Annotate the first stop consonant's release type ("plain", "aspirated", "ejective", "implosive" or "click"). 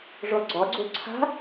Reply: click